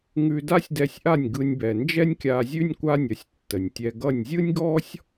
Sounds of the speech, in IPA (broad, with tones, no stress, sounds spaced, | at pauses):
ŋ ʉ˧ d a˥ sʲ d ɛ˧ sʲ ʔ a˥˩ nʲ ɡ ɯ˧ nʲ b ɛ˩ n d͡ʒ ɛ˥ nʲ kʲ a˧ zʲ ʉ˥ nʲ kʷ a˥ nʲ ʌ˩˥ sʲ tː ə˩ nʲ tʲ ɛ˧ ɡ ʌ˥˩ nʲ zʲ ɯ˥ nʲ ɡ ɔ˥ sʲ